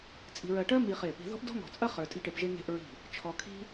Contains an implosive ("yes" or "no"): no